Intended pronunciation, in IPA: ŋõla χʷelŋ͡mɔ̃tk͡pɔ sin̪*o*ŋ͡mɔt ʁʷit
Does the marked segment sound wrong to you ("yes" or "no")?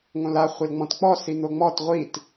no